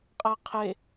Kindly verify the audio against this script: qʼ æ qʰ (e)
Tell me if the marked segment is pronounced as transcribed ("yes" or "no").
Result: yes